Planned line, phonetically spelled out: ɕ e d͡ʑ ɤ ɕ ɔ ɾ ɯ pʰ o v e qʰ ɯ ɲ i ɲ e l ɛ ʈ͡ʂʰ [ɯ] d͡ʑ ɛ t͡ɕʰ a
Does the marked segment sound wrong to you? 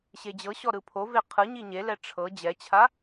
yes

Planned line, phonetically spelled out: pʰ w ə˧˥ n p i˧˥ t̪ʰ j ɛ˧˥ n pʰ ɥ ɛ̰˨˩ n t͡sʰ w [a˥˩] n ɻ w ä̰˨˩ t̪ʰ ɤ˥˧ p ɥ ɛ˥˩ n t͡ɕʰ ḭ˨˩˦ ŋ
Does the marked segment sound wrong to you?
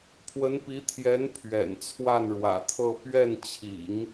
no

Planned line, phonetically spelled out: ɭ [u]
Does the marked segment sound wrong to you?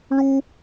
no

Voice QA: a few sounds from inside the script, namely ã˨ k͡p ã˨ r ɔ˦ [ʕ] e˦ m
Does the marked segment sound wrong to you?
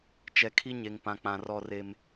yes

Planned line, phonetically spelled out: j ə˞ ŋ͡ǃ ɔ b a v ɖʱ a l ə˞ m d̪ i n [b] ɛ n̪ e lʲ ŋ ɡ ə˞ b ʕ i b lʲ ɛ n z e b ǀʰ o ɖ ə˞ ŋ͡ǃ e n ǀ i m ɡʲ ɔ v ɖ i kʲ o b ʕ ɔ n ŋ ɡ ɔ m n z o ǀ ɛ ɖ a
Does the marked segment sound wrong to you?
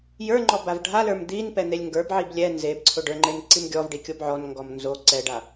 yes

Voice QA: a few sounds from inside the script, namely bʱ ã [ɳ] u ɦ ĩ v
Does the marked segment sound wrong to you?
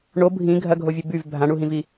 no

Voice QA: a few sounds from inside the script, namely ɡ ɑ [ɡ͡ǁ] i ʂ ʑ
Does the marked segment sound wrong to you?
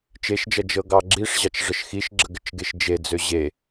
no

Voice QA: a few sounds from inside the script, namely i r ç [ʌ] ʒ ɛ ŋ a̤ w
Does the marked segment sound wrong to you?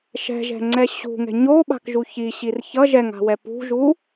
no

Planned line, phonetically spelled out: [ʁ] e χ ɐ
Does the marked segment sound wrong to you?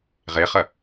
no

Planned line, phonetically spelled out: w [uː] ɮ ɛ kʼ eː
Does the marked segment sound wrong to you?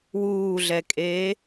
no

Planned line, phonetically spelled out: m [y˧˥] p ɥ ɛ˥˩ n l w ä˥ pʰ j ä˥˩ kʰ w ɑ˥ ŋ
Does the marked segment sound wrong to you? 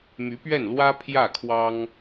no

